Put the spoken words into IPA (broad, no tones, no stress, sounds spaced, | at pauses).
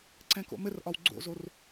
ǀ ɛ̃ k o̰ m ɘ r ʔ ɒ w ɡ͡ǀ o̰ z o r